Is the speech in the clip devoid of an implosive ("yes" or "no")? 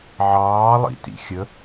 yes